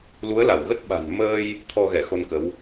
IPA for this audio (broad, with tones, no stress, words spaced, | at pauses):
lu˨˦ə̯la˧˩wɣə˦˥t̚ ɓa̤˨˩nməː˧j | t̪ʰɔ˧ɣɛ˧˩xo˧nkə˨˦w